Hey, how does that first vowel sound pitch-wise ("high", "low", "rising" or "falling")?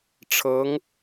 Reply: rising